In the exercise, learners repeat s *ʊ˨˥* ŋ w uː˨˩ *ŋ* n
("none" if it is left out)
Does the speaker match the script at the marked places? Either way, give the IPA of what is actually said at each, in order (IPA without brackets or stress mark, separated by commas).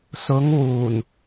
ʊ˨˧, none